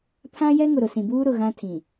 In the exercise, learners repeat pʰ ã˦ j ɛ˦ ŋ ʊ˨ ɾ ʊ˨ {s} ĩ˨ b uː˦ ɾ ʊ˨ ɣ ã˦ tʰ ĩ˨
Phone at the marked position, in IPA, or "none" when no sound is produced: s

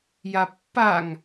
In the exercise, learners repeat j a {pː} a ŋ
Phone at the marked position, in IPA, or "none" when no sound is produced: pː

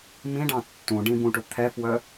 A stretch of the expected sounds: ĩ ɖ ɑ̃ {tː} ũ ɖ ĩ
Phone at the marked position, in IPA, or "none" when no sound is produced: tː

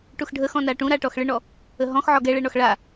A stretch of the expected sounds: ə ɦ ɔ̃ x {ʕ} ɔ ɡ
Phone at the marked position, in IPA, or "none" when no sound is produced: ʕ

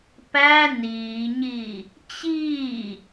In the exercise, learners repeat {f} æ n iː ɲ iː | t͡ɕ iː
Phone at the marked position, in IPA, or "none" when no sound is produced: p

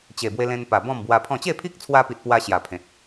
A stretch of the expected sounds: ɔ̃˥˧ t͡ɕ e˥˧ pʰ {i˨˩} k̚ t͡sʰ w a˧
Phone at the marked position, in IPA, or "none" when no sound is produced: i˦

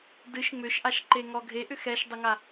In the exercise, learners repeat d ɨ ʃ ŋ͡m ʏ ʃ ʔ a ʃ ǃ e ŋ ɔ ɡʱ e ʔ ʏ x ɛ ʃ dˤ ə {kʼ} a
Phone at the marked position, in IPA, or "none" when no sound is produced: ŋ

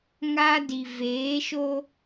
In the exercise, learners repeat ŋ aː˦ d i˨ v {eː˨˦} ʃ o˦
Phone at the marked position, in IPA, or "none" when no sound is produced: eː˨˦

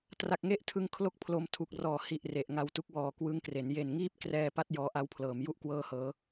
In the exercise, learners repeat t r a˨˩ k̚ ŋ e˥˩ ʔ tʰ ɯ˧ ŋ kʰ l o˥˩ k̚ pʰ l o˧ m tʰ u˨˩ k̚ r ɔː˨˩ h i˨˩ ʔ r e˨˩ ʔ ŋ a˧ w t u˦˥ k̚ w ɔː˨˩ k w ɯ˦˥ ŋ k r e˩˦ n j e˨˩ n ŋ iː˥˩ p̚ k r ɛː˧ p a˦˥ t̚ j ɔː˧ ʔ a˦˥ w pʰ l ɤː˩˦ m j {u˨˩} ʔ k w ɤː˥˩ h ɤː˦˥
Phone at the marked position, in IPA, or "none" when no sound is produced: u˥˩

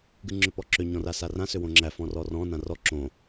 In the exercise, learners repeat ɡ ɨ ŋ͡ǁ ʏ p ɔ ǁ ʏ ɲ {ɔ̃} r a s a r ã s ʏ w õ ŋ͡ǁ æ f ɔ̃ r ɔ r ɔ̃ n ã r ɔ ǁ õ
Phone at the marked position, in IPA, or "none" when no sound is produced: ɔ̃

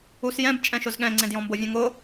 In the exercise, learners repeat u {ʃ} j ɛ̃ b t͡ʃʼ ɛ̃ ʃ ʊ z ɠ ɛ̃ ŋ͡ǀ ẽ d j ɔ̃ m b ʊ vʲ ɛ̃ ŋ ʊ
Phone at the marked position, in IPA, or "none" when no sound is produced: s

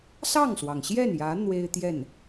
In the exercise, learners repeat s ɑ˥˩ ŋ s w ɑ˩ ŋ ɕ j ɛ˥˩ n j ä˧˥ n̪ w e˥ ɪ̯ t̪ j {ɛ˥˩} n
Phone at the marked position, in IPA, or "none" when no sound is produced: ɛ˥˩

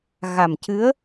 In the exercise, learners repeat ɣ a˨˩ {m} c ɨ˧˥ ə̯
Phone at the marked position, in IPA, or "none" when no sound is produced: m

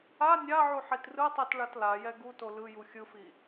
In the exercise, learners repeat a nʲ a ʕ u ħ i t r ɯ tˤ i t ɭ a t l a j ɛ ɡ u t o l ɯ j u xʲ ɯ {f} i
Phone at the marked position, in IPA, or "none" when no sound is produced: f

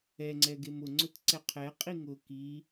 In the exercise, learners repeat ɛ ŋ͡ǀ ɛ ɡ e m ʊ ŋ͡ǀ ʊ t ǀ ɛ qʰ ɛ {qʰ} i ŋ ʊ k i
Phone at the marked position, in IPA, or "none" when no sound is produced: qʼ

